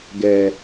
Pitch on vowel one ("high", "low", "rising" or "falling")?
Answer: high